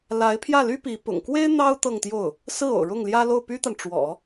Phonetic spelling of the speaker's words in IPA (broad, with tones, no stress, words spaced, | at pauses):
la˧˥ɪ̯pʰjä˥˩ly˥pi˧˥ pʊ̰˨˩ŋ kwe˥ɪ̯ n̪ɑ˥ʊ̯ t̪ɤ˥˧ŋt̪jo˥˩ʊ̯ | sɹ̩˥˩o̰˨˩ʊ̯ɻʊ˥˩ŋljä˥ lo˥˩ʊ̯py˥t̪a˨n ʈ͡ʂwɔ̰˨˩˦